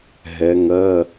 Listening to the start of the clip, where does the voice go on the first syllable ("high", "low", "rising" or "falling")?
rising